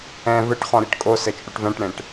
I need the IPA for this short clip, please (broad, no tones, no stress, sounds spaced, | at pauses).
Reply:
ɛ̃ v ɘ ʈ χ ɔ̃ ɾ i ʈ kʼ o s ɘ t͡ʃʼ u ʈ v ɛ̃ ʈ ɽ ẽ ʈ